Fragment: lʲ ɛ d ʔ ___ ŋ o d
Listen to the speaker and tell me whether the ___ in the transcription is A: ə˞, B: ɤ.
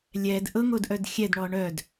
B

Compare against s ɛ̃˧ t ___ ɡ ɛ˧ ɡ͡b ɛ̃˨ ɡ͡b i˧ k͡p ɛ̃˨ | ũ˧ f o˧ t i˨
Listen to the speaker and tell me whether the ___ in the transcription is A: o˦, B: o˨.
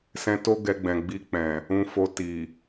A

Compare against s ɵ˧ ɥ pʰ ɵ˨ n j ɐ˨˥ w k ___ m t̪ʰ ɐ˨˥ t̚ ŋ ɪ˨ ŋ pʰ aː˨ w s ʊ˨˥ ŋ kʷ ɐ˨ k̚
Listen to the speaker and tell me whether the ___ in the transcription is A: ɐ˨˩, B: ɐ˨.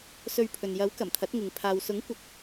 A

